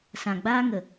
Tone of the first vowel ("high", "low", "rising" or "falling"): low